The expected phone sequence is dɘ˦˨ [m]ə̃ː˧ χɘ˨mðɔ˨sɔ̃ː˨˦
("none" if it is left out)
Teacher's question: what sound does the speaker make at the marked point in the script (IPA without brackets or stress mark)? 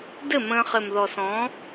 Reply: m